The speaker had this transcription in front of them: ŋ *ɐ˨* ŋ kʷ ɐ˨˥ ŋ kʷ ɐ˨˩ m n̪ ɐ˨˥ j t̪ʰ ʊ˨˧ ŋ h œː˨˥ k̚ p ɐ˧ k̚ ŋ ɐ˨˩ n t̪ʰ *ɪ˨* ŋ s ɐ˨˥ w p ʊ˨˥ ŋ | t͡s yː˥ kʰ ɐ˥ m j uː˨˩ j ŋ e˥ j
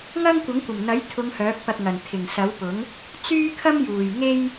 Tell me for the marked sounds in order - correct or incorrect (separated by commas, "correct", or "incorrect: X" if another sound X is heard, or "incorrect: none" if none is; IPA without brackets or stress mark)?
incorrect: ɐ˥, incorrect: ɪ˨˩